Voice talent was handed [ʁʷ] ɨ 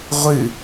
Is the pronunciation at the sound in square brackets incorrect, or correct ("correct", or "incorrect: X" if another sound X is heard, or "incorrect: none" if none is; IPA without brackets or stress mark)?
correct